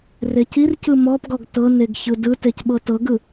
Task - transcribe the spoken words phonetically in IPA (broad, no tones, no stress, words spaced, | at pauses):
recircɯ mɔpɡɔɡ tɤneɡ çɯdɯtec ɓɤtɤɡɯ